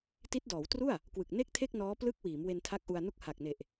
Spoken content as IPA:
ti˦˥t̚dɔː˩˦wtru˥˩a̯ | kwɯ˨˩k̚ne˥˩k̚tʰe˥˩k̚nɔː˦˥ plɯ˦˥k̚ wiː˩˦mwe˧ntʰa˦˥k̚ ʔu˧a̯nu˥˩k̚ ha˨˩k̚ne˨˩ʔ

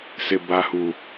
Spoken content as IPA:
sɪ˨ba˨hu˨

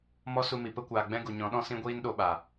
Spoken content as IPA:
mɔ˦su˧mi˨ pə˦kʷaː˨ɡ͡bɛ̃˦ ɡu˨ɲɔ̃˨˦ɗɔ̃˦sĩ˦ ɡʷiː˦nɗo˧ɓa˨

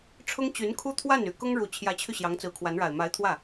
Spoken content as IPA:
ʈ͡ʂʰʊ˥ŋt͡ɕy˧˥nkʰu˥ t̪ʰwa˥˩ny˨˩ kʊ˥ŋɻu˨˩ t͡ɕʰjä˧˥t͡ɕʰy˧ ɕjɑ˧˥ŋt͡sɹ̩˧˥kʰwa˧˥nɻa˨˩ɪ̯ ma˧˥ɪ̯t̪ʰwä˥˩

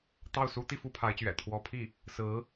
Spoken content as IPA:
t̪ɑ˥˩ʊ̯su˥ t̪i˥fu˧˥pʰa˧˥ɪ̯t͡ɕɥɛ̰˨˩ t̪ʰwɔ˧˥pʰi˥˩ | sɹ̩˧˥

